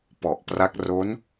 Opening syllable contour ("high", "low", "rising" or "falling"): low